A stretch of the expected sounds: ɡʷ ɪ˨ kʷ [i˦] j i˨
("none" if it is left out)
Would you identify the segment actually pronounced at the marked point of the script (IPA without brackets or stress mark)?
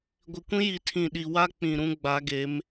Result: ĩ˦